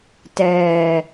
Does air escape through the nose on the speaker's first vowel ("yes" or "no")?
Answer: no